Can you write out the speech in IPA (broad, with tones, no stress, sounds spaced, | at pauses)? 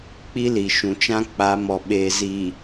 k͡p i˦ l i˨ ʃ ũ˨ t͡ʃ ã˦ k͡p a˨˦ m ɔ˨ ɓ eː˨ z i˨